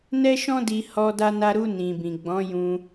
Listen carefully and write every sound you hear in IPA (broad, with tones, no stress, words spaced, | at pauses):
nɛ˦ʃɔ̃˦di˧ hɔ˧ da˧na˧ɾu˧ nĩ˨bĩ˨ ɡ͡bɔ̃˨˦jũ˧